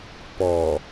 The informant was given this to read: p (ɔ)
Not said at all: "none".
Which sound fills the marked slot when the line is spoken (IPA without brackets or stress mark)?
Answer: ɔ